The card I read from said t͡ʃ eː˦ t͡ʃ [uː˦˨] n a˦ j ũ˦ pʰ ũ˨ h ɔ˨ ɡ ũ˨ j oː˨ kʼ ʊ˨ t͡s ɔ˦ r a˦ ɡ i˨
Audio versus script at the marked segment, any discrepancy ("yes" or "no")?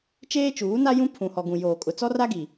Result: yes